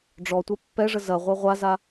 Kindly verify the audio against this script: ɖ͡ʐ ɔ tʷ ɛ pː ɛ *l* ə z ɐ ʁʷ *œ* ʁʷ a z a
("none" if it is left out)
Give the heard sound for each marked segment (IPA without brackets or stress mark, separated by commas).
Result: ʐ, œ